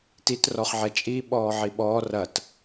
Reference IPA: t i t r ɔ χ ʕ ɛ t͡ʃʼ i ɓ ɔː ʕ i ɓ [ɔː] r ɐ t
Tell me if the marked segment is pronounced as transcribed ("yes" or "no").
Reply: yes